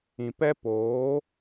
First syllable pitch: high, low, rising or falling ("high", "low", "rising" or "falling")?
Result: low